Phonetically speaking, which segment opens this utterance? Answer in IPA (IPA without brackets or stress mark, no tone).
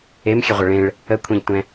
e